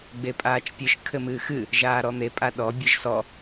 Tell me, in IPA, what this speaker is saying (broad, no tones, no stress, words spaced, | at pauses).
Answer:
ɡ͡bepʼaːt͡ʃpʲɨʃ kʰɘmɨːxɨ | ʒaːɾɔn̪e pʼaɗɔ bʲɨʒsɔ